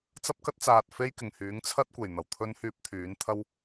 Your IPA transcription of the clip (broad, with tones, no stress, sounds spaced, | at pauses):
t͡s ɐ˥ p̚ k ɐ˥ t̚ t͡s aː˨ t̚ f e˥ j k ɪ˨˩ ŋ h yː˨˥ ŋ t͡sʰ ɐ˥ t̚ kʷ e˨˩ j n̪ ɐ˨˩ w t̪ʰ ɵ˥ n h yː˥ p̚ t̪ʰ yː˨˥ n t̪ʰ ɐ˥ w